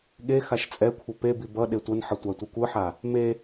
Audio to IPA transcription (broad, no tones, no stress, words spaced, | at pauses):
ɠe xaʃt͡sʼɛkʷʰʌ pebi bʌ ɗetʷʌnħʌ tʷatʷikʷɯħa | me